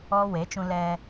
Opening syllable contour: high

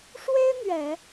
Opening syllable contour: high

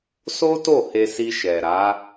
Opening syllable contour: high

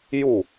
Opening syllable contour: falling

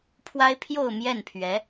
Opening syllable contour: high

